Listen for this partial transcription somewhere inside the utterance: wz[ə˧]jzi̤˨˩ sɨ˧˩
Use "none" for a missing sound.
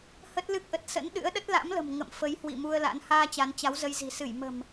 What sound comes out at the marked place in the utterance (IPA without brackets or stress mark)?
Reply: ə˧